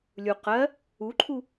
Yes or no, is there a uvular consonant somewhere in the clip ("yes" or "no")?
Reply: yes